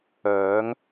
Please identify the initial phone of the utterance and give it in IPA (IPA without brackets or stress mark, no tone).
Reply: œː